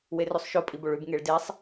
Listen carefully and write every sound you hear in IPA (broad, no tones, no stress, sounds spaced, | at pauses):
w e r ʉ sˤ ʃ o pʼ i b o ɭ ʉ b ŋ e ɭ d e sˤ